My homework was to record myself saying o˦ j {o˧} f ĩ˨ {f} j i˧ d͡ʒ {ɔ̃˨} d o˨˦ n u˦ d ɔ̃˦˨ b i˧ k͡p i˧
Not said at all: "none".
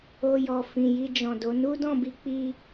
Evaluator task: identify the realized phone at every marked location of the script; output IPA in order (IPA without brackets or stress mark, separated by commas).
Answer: ɔ˧, none, ɔ̃˨